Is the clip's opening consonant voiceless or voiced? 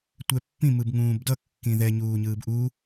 voiceless